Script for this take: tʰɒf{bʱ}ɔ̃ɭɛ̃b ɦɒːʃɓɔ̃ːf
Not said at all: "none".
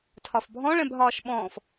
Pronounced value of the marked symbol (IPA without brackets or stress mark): bʱ